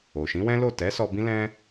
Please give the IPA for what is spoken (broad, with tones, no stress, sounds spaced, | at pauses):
o˨ ʃ ĩ˨˦ w ɛ̃˦ l o˦˨ t ɛ˨˦ s ɔ˧ b ĩ˦ l ɛ̃˦